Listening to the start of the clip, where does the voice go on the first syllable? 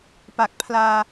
low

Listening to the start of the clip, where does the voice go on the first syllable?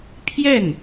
falling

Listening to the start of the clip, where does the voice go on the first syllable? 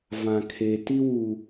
low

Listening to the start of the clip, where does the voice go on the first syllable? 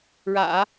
low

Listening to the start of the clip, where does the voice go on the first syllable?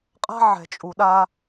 high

